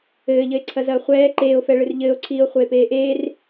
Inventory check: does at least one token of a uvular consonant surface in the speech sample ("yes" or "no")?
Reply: yes